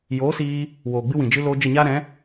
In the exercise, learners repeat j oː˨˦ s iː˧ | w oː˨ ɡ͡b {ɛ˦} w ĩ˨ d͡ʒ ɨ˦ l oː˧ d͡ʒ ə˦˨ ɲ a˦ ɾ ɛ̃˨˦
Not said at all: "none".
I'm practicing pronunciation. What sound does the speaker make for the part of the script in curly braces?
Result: ɨ˦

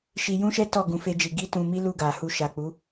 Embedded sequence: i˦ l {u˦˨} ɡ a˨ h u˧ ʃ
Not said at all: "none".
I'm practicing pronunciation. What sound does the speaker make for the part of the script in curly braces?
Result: u˦˨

